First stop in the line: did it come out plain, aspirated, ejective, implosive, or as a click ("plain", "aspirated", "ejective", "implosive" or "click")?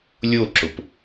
click